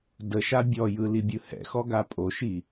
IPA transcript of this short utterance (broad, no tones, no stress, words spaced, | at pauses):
dəʃa bʲɔjɯ libʲɯhɛ̰xɔ ɡapʼoʃi